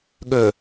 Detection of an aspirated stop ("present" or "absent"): absent